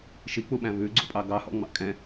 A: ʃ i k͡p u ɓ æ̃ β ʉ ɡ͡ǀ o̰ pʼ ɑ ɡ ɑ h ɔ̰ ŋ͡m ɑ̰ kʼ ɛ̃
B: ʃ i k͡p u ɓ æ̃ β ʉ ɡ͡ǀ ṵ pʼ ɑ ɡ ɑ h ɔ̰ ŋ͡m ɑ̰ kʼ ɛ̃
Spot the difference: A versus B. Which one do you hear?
B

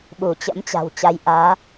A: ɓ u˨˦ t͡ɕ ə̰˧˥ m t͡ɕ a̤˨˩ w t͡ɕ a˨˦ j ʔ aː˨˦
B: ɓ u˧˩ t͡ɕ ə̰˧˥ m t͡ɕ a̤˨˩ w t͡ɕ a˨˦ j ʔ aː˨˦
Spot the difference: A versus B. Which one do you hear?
B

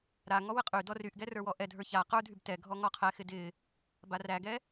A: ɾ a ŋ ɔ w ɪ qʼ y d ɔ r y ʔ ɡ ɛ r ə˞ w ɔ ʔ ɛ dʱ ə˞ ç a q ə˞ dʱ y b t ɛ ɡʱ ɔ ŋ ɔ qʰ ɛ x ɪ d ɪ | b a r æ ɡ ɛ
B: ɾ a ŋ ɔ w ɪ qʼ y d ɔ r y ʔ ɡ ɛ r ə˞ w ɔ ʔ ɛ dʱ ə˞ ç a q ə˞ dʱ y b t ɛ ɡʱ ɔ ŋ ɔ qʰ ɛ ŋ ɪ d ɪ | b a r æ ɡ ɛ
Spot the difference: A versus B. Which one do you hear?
A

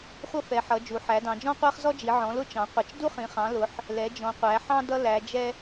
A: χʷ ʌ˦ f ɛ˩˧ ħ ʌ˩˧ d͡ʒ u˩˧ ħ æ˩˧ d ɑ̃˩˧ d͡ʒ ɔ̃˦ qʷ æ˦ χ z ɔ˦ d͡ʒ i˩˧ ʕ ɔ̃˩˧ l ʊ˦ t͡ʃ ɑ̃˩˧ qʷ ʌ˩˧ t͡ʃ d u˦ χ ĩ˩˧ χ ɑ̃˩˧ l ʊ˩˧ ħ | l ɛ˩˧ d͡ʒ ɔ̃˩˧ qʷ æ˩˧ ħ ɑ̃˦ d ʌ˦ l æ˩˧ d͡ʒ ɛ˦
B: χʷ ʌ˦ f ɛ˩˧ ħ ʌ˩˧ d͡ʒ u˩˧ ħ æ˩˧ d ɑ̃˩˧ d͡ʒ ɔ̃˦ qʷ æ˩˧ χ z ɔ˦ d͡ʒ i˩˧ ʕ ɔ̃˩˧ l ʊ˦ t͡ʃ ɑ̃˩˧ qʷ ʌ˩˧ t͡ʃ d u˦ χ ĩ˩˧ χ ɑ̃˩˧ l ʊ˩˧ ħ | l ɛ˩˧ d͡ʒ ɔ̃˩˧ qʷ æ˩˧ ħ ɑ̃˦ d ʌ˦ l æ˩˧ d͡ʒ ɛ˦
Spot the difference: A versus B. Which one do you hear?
A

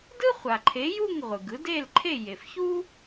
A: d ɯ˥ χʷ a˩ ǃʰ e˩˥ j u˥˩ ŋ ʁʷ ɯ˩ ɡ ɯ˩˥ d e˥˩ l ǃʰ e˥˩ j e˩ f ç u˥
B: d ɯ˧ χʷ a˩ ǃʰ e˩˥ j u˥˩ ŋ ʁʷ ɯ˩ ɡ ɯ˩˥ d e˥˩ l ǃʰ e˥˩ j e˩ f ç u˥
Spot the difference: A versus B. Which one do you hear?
A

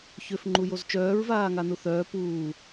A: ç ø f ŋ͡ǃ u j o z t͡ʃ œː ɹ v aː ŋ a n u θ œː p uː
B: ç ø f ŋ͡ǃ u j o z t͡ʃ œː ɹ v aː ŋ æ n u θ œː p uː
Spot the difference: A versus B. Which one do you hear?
A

